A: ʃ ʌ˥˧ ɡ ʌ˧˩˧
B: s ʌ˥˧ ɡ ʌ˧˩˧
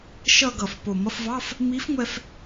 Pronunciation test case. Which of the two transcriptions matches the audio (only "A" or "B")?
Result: A